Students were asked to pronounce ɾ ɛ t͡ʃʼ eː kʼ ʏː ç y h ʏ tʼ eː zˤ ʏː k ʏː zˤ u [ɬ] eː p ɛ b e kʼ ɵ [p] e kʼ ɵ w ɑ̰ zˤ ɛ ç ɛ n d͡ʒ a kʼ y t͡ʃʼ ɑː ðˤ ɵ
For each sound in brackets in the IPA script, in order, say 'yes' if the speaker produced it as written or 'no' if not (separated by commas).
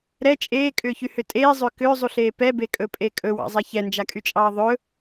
yes, no